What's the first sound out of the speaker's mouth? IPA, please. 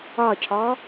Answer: ɒ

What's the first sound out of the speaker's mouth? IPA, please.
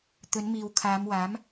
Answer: t̪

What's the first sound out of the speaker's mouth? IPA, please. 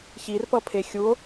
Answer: ç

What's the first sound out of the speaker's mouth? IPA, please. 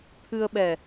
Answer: t̪ʰ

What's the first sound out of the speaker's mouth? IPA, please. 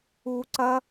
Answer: u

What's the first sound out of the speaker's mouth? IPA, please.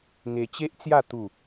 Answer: ŋ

